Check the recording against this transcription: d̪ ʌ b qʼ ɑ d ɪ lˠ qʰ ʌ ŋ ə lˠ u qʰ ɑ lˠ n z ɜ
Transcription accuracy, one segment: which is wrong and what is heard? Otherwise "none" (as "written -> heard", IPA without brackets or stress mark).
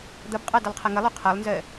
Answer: none